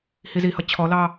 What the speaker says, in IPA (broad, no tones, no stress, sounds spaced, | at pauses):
h i z i h ʌ t͡ɕʰ ɔ l ɑ